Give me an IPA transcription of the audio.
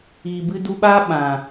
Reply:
iː˨ b ɨ˧ d u˧ ɓ aː˦ ɓ ã˨

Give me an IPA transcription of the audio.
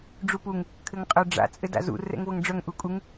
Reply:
ɖ͡ʐ u p u ŋ | kʰ ɘ ŋ qʼ œ ɖ͡ʐ a̰ t͡sʼ ɘ d a̰ z ṵ r ɛ̰ ŋ v ɤ ŋ ɖ͡ʐ œ ŋ ʔ u kʼ u ŋ

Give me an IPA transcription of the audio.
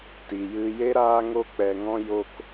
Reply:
t i˨ j ɨ˧ j e˦ ɾ aː˦ ŋ o˦ k͡p ɛ˧ ŋ ɔ̃˦ j o˦ k

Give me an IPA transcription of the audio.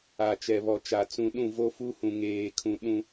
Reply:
a˨ t͡ʃ ɛ˨ β ɔ˨ t͡ʃ a˨ t͡s ũ˨ ɗ ũ˦˨ v o˦ f u˦ h ũ˨ ŋ eː˨ kʰ ũ˨ ɗ ũ˦

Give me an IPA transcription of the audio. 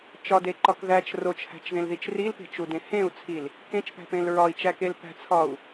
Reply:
t͡ʃ ɒ d e ǃ ɒ k ð æ t͡ʃ r o t͡ʃ h æ̤ t͡ʃ ð ẽ l ð i t͡ʃ r i l p e̤ t͡ʃ u d ẽ h ẽ u̯ t͡sʰ i l | k ẽ t͡ʃ p æ̤ p ẽ l ɹ ɒ i̯ t͡ʃ æ k e l p æ̤ t͡sʰ ɒ u̯

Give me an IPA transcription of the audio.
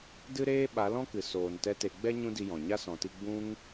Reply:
d ɨ˦ ɾ eː˦ ɓ a˨˦ l ɔ̃˦ k ɨ˨ s oː˨ n t ɛ˦ t e˧ ɡ͡b ɛ˦ ɲ ũ˦ d i˧ j ɔ̃˨ ɲ a˦ s ɔ̃˨ t i˧ ɡ͡b ũ˦ ŋ

